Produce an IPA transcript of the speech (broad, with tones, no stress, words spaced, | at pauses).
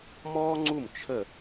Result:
mɔː˥ŋ͡ǀu˥˩m t͡ʃʰə˥˩